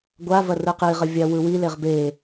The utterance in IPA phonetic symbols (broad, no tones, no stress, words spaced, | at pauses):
ɡʷavɐ rɯqiʁə vʲawɯwileʁ be